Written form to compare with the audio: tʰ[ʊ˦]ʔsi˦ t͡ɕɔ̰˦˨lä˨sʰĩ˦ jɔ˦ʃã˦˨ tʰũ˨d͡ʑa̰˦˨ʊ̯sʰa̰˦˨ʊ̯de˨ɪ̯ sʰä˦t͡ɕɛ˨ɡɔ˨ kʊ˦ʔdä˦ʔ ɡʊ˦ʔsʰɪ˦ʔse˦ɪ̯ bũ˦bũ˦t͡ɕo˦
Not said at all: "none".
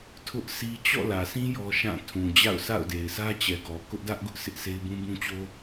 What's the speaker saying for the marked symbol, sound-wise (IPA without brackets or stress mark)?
ʊ˦